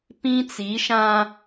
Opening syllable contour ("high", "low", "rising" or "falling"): high